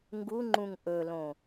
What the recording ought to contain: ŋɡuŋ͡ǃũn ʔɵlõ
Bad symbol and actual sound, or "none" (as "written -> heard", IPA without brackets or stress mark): n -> ŋ